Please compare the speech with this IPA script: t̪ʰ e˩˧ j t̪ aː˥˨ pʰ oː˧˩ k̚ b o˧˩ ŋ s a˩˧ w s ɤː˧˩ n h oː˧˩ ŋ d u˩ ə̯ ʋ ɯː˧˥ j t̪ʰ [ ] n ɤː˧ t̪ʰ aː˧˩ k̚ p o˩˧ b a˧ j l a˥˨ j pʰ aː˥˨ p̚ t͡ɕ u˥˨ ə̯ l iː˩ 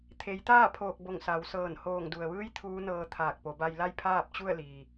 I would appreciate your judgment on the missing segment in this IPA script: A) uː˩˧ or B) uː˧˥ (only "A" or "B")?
B